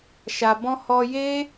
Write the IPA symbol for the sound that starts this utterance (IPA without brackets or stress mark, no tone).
ʃ